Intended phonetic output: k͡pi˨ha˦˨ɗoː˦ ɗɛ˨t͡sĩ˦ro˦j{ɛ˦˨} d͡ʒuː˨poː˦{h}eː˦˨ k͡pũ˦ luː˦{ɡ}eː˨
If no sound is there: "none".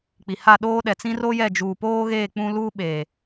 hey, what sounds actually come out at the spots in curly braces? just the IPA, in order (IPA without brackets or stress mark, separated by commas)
ɛ˦˨, ɣ, ɓ